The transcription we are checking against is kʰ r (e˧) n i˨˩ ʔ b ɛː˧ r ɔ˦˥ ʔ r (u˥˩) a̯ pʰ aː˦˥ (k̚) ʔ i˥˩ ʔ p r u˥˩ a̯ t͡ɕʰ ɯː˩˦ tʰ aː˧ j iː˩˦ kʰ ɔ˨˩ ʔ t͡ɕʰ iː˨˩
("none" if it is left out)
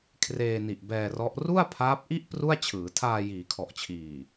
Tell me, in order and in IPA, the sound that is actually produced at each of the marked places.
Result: eː˧, u˥˩, p̚

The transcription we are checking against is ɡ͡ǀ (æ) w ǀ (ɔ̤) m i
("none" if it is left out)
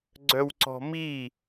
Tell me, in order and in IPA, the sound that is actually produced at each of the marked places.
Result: œ, ɔ̤

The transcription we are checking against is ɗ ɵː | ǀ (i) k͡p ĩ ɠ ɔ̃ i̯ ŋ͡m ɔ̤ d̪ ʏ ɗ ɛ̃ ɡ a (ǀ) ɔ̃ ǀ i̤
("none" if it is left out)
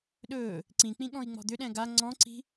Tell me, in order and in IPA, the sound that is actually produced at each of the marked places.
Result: ĩ, ŋ͡ǀ

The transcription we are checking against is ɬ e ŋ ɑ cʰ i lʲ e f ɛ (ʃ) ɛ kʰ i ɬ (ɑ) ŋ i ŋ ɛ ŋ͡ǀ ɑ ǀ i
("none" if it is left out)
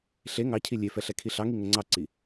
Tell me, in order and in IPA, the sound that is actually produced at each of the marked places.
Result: ɬ, ɑ

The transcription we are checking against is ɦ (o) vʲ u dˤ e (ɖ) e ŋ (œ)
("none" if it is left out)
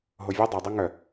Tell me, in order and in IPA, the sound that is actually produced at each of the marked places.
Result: o, dˤ, œ

